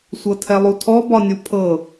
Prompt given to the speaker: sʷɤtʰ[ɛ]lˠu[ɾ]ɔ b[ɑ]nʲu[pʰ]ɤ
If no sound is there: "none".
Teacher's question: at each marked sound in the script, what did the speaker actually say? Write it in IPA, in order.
ɛ, tʰ, ɒ, pʰ

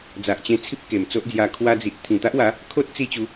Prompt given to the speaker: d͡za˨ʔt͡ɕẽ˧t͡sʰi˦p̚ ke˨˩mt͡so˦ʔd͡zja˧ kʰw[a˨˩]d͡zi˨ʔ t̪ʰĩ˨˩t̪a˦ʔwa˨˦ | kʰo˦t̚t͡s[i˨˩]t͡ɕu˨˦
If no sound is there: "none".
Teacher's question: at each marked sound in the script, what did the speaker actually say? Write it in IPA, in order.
a˧, i˧

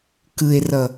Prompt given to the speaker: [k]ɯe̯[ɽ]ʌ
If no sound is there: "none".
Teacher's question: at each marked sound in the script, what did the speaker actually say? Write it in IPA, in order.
k, r

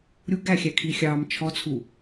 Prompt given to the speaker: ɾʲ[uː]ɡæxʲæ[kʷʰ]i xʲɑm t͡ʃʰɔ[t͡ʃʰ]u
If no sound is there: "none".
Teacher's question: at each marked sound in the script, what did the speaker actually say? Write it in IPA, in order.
u, kʰ, t͡sʰ

